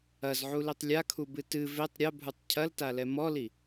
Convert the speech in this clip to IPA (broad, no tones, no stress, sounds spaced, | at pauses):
ɐ z ʕ u l i tˤ lʲ a kʰ u b ɨ t ɨ v e tˤ ɾʲ ɐ bʱ u tˤ cʰ ɐ l t a l ɛ m ɔ l i